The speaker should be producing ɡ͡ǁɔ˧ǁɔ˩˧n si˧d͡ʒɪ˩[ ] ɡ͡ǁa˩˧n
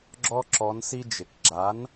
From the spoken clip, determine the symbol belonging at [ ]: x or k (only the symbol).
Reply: k